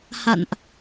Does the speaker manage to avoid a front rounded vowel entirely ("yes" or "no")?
yes